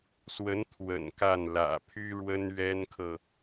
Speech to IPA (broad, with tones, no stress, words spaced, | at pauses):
swə˧˥n t̪ʰwə̰˨˩nka˥˩n lä̰˨˩pʰy˥ ɻwə˥nɥɛ˥nkʰɤ˨